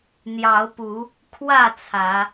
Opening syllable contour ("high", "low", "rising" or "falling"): rising